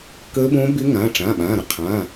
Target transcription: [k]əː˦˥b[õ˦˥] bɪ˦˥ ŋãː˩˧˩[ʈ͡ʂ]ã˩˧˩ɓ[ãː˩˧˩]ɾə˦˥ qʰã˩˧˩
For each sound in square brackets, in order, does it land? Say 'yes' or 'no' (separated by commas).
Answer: yes, yes, yes, yes